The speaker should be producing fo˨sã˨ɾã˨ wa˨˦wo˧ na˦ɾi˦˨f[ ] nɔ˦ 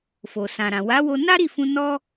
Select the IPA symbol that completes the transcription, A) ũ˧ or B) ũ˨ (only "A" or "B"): A